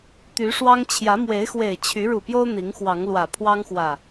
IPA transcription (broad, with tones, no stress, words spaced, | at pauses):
t̪y˨˦ʂwɑ˦ŋ t͡ɕʰjä˨˦mwe˨˦ɪ̯xwe˨˩ɪ̯ t͡ɕʰy˨˦ɻu˨˩pjo˦ʊ̯ n̪i˨˦ŋxwɑ˨˦ŋ lwä˨˩pʰwɑ˦ŋxwä˨˩